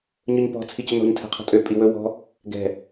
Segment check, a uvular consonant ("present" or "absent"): present